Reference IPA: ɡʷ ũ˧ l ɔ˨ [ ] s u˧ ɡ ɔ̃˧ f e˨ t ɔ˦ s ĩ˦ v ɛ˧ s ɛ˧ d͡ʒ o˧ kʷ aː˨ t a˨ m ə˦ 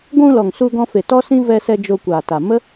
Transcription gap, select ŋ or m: ŋ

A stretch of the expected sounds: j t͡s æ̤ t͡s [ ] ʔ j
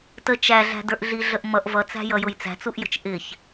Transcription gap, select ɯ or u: u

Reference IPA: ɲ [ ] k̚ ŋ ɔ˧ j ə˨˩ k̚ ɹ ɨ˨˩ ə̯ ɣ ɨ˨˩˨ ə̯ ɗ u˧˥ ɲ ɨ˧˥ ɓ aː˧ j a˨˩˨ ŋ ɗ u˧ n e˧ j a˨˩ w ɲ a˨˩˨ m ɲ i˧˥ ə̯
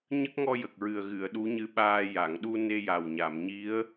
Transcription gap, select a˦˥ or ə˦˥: ə˦˥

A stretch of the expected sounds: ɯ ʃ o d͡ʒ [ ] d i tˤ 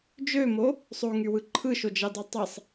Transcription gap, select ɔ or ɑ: ɑ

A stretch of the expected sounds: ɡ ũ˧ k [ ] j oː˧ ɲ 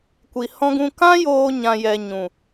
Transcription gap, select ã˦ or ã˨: ã˦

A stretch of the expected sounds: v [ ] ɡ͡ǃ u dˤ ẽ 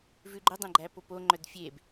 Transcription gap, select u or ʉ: ʉ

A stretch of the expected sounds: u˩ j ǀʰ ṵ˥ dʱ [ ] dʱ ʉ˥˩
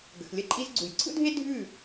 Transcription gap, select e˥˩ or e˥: e˥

